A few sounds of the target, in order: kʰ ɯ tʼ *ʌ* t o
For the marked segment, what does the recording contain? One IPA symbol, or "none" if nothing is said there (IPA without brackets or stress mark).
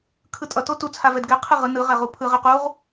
ʌ